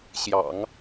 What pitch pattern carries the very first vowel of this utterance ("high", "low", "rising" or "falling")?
low